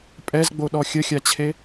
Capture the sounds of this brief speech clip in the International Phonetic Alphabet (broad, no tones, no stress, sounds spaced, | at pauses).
pʼ ɛ z ɡ͡b o ɗ ɔ xʲ ə xʲ a t͡ɕʰ e